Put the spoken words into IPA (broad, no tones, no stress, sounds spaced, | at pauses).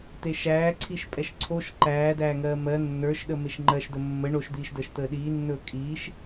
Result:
t̪ e ʃ æː ǀʰ i ʃ pʼ ɛ ʃ ǀʰ o ʃ ǃ æː d æː ŋ ɜː m ɜ nː ə˞ ʃ ɗ ə m e ʃ ŋ͡ǃ ɜ ʃ d ə mː ə ɳ o ʃ d̪ iː ʃ d əː ʃ t̪ əː ɗ iː nː ɵː kʼ iː ʃ